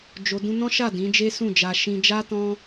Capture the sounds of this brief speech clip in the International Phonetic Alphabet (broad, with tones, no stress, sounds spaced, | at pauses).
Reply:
d͡ʒ o˨ d ũ˧ n ɔ̃˦ ʃ a˦˨ d ĩ˨˦ d͡ʒ e˦ s ũ˦˨ d͡ʒ a˧ ʃ ĩ˧ d͡ʒ a˦ t ɔ̃˦